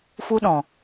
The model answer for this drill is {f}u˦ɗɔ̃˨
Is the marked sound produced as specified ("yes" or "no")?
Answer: yes